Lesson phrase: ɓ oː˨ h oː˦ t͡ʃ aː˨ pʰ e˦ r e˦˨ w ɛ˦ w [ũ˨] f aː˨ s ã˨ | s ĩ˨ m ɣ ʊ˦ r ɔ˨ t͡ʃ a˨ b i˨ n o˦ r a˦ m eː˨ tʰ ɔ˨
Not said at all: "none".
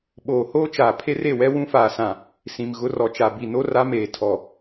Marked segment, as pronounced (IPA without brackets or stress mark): ũ˦